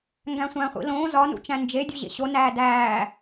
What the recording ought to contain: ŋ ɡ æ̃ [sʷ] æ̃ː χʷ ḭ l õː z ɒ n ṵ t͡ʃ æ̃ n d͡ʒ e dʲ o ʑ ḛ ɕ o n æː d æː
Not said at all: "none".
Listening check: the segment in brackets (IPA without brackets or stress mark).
sʷ